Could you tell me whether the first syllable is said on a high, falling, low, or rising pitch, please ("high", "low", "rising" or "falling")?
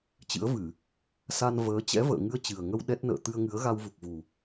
rising